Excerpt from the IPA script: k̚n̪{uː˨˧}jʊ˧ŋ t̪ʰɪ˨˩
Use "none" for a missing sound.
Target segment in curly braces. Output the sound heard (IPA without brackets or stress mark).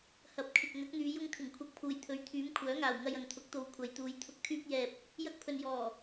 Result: yː˨˧